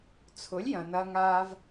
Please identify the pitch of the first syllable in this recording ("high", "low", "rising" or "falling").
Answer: rising